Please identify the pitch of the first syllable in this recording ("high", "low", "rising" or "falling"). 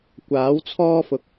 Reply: rising